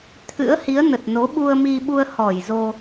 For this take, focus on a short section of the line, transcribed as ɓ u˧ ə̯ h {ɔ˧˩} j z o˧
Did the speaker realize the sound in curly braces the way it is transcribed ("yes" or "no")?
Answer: yes